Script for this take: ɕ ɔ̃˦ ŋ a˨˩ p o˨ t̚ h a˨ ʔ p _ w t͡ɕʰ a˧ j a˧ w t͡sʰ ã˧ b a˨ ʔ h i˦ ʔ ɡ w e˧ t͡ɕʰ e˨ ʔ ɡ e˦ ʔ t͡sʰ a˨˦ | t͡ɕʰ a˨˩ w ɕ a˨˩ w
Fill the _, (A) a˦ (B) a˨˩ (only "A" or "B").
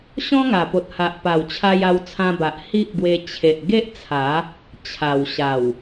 B